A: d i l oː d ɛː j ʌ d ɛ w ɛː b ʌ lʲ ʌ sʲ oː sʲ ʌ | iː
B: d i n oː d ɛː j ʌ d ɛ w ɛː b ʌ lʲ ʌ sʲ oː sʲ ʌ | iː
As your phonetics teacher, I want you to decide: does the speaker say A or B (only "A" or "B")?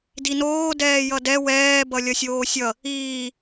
B